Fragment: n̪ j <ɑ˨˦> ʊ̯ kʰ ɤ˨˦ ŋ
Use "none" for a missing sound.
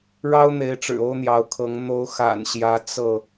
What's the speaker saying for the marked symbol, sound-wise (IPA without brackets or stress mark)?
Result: ɑ˨˦